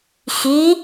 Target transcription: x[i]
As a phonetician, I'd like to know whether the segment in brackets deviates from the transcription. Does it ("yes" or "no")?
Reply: no